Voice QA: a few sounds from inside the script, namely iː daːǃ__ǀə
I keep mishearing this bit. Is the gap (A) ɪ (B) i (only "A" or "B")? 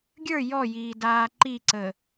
B